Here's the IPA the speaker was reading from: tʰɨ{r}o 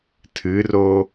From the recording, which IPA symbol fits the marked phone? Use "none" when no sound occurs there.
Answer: r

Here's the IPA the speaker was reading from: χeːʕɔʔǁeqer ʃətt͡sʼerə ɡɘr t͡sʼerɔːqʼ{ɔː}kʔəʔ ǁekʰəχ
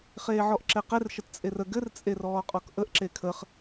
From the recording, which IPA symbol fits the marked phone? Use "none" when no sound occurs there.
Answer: ɔ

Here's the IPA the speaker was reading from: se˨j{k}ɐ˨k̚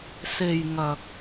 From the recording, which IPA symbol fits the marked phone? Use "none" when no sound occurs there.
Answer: ŋ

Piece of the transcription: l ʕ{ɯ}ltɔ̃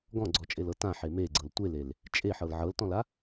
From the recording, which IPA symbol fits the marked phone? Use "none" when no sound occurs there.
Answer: ɤ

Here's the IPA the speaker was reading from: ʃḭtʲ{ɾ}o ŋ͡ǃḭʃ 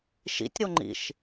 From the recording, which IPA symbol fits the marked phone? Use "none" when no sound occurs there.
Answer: ɾ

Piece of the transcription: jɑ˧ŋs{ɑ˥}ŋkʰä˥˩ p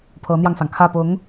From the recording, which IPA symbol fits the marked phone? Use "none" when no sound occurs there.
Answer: ɑ˩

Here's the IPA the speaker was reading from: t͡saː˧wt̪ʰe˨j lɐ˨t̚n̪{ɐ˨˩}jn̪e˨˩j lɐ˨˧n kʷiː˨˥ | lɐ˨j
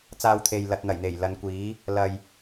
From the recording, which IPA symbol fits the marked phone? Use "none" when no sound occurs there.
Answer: ɐ˨˩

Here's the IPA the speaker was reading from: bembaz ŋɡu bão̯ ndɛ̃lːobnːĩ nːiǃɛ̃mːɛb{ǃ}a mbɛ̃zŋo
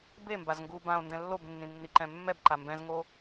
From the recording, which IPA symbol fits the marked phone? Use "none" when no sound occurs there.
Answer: ǃ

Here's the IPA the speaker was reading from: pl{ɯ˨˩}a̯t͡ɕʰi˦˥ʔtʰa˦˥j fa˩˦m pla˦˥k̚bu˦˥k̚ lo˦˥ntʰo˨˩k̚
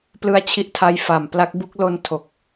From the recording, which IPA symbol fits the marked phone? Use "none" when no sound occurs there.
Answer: ɯ˦˥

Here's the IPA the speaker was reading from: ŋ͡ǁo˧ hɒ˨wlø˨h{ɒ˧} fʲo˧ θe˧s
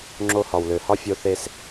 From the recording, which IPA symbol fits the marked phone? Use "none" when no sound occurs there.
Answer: ɒ˦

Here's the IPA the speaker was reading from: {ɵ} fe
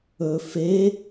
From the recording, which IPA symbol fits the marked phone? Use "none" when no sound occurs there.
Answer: ɵ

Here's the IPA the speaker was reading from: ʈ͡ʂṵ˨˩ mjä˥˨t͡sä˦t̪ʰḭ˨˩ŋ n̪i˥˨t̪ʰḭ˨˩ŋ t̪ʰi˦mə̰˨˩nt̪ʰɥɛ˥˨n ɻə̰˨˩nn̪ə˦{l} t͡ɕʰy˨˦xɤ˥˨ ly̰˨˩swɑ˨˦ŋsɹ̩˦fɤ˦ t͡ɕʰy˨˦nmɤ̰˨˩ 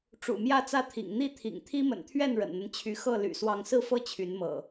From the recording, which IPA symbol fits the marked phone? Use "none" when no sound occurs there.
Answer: n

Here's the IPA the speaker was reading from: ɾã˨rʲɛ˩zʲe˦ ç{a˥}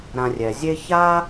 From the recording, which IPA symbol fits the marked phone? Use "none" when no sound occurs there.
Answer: a˥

